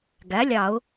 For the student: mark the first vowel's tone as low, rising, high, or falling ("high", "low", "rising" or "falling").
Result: rising